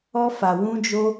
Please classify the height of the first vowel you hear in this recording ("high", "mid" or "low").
mid